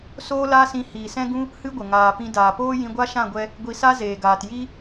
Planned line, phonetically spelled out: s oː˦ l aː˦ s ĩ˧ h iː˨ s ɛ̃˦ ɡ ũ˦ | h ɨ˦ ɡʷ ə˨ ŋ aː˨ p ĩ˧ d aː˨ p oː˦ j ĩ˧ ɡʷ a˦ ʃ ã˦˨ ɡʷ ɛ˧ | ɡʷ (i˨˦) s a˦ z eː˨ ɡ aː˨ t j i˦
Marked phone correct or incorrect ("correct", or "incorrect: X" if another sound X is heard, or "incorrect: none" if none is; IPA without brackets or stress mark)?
incorrect: i˧